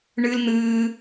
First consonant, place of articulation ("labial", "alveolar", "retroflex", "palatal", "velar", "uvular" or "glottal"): retroflex